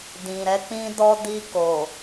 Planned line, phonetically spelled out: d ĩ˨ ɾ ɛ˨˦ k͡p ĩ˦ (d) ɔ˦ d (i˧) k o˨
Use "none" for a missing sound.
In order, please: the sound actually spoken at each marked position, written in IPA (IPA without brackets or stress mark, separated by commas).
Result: d, i˧